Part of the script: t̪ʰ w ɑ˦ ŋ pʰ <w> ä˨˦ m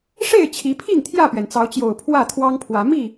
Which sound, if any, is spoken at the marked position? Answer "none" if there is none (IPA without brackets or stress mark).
w